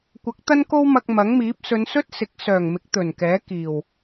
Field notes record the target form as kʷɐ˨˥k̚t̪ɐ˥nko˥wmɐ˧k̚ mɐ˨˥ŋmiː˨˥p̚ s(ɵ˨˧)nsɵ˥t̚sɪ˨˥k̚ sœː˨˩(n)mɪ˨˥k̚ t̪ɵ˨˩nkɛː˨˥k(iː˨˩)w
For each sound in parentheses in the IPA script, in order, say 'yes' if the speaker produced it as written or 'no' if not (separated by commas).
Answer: yes, no, yes